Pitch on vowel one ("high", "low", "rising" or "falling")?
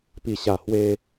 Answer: low